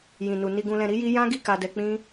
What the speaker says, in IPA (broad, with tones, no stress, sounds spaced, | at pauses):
j ĩ˨ n u˨ n i˧ ɡ ũ˧ l ɛ̃˧ ɾ i˦ j i˦ j ã˦ ɡ i˦˨ k a˧ d ɛ˧ k͡p ĩ˦